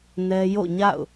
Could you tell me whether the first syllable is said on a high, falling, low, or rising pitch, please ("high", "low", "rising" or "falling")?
high